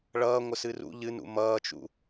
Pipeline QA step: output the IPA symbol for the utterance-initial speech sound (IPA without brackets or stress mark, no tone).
ɭ